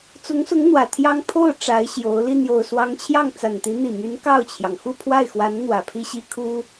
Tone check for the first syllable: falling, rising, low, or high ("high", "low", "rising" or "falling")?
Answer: rising